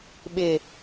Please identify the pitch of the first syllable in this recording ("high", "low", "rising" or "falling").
low